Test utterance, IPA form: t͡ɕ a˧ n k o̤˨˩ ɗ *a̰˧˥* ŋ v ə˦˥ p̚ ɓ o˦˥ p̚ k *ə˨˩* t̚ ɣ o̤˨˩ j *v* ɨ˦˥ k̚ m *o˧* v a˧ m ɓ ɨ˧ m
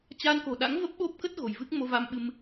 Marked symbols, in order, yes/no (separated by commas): yes, no, yes, yes